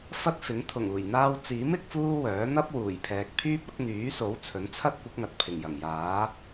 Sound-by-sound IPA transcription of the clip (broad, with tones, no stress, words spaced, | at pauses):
fɐ˥t̚fɪ˨˥ŋ t̪ʰʊ˨˩ŋuː˨˩jn̪aː˧wt͡siː˨˥m ɪ˨˥k̚fuː˥wœː˨˥ n̪ɐ˥p̚ wuː˨˩jpʰɛː˨k̚ pʰyː˥p̚ɐ˨˥k̚n̪yː˨˥so˨˥w t͡sʰɵ˨˥nt͡sʰɐ˥t̚ kʷɪ˨˥k̚ŋɐ˨t̚pʰɪ˨˩ŋ jɐ˨˩ŋjaː˨˥